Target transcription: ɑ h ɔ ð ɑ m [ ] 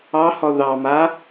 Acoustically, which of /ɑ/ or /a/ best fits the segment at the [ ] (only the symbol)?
a